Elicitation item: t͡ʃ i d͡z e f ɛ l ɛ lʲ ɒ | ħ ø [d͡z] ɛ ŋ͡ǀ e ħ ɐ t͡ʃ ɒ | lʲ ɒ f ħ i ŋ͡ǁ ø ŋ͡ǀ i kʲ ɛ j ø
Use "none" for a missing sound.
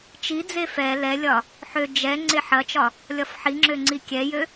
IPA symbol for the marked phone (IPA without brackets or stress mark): d͡ʒ